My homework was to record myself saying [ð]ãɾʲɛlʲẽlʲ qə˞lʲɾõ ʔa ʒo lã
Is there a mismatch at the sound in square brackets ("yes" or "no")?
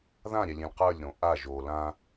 no